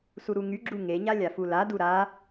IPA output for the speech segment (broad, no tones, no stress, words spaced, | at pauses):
suɾuŋyɡ͡ǁu ŋeɲa lʲafuladu ɾa